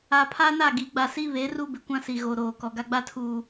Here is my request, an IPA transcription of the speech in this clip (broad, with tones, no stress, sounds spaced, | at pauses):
a˨ pʰ a˦ n a˦˨ ɡ i˨˦ ɡ͡b a˨ s i˦ β e˨˦ r u˦ b ɪ˨ kʷ ã˦ s i˨ ɣ o˨ ɾ oː˨ k ɔ˨ ɡ a˦ ɡ͡b a˦ tʰ uː˨